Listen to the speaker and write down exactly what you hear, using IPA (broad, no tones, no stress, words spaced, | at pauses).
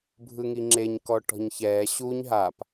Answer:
bʱɯŋiŋ͡ǁeɲ kɔʈɔ̤ɲçɛː ɕuɲ ɦap